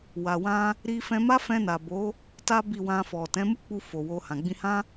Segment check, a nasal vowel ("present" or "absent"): present